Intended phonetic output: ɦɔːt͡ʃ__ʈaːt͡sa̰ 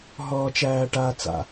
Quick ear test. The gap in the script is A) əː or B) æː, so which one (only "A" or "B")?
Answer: B